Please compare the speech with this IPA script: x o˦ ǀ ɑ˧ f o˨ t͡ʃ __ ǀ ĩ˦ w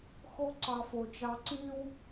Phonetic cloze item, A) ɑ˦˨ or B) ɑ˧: B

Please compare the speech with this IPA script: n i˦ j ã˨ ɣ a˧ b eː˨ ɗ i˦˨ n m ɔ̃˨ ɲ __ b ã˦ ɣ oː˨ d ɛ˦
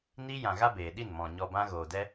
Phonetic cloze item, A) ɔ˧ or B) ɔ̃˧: A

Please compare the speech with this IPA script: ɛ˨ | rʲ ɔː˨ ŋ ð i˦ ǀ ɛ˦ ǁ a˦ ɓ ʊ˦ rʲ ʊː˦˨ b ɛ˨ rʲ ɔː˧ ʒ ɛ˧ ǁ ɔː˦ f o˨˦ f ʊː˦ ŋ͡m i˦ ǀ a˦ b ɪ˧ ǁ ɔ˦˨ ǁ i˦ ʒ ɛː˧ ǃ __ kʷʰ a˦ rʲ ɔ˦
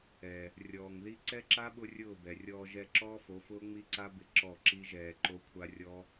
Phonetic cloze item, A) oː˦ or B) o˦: B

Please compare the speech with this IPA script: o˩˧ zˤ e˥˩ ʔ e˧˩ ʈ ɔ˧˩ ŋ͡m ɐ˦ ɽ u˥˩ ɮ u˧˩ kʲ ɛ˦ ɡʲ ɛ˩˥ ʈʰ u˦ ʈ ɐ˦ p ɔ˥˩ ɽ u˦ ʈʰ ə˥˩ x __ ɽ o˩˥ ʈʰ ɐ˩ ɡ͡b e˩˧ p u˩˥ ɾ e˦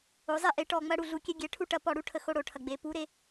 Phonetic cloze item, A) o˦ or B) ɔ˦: A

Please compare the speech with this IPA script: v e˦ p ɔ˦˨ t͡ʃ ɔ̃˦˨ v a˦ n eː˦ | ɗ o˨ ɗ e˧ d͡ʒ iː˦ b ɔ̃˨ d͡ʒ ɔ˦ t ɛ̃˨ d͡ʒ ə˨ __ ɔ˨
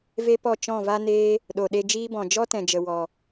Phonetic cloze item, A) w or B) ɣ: A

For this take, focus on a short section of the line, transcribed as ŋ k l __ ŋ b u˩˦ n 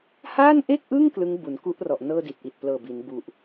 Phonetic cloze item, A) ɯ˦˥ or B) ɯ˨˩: A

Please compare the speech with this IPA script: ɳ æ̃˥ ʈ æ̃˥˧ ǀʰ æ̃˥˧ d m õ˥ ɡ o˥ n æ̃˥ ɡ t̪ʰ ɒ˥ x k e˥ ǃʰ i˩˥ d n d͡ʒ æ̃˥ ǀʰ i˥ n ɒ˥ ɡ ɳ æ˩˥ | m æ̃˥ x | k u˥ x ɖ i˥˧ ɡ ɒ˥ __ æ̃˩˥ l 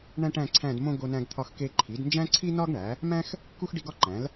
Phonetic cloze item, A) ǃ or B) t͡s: A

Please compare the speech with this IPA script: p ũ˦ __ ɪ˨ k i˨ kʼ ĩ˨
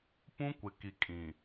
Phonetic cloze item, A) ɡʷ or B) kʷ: B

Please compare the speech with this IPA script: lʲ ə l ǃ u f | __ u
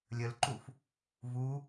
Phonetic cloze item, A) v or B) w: A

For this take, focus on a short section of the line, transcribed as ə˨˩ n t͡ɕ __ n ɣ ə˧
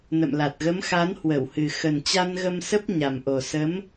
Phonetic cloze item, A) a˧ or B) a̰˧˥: A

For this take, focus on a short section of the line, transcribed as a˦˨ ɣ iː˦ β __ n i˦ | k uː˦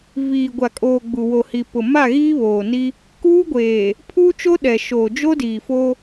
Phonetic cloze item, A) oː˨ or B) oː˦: A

